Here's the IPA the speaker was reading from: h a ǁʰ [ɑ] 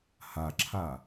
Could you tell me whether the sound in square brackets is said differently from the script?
yes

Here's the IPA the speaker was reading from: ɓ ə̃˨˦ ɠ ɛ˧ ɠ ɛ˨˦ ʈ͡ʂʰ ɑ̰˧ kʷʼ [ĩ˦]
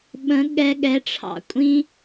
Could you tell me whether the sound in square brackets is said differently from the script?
no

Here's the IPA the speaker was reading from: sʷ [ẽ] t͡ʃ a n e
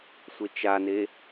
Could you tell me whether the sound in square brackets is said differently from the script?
yes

